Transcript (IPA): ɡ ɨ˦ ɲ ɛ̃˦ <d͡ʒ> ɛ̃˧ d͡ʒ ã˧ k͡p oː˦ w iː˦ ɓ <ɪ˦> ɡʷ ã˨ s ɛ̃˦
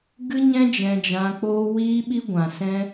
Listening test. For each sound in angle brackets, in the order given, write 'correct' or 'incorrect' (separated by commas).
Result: correct, incorrect